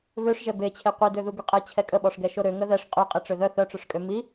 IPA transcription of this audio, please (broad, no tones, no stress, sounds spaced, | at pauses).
β ø ʂ ʒ ɛ b e t͡ɕʰ e qʷ i d ø ð u ɡ y qʼ ɛ t͡ɕʰ ɛ kʼ ə ɓ ɔ ʂ ɡ ɛ ʃ o ɾ ø ŋ ə ð ɛ ʂ qʼ y qʼ i ʈ͡ʂ ø ð œ θ œ ʈ͡ʂ ø ʂ kʼ ø m i